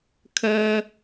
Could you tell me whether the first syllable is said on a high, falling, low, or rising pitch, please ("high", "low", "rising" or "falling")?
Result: high